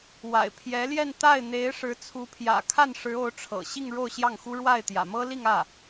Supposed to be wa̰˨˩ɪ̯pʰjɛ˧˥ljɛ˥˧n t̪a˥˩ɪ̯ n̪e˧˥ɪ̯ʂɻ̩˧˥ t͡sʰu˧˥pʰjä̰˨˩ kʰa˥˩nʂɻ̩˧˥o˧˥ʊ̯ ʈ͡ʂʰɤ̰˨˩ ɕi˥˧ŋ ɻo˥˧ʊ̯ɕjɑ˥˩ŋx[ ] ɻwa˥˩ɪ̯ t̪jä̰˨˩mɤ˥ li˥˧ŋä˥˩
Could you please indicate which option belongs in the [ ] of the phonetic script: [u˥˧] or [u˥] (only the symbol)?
u˥